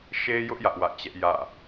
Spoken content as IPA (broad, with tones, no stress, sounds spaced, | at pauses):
ʃ e˦ j ʊ˦ ʔ j ä˦ ʔ w ä̰˦˨ t͡ɕ ɛ˦ ʔ j ä̰˦˨